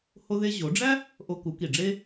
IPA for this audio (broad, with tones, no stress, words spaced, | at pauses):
ho˧ðe˧ʑo˩˧ɖ͡ʐæ˥ | ʔo˧ku˩˧ki˩ɖ͡ʐe˥